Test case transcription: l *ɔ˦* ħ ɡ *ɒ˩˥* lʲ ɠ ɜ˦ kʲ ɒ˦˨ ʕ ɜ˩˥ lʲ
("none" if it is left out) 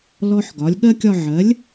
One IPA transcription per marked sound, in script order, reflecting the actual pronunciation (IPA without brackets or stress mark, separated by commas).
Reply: ɔ˦, ɒ˩˥